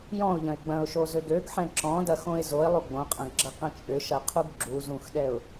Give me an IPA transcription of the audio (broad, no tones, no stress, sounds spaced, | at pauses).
j ɔ̃ ʊ̯ ʎ ɐ̃ ɪ̯ ɡ͡b ɐ̃ ʊ̯ ʃ o z ø ɡ ø ɡ ħ ɛ̃ ǁ ɔ̃ d ɐ x õ ɪ̯ z o ɪ̯ lˠ u ɡ͡b õ qʼ ɐ̃ ɡ ɡ͡ǁ ɐ q ɐ̃ t͡ʃʼ ʏ ʃ ɐ qʰ u ɡ ɡ͡ǁ u z ũ x ɗ ɛ ʊ̯